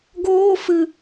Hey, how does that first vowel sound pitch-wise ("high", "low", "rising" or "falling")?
high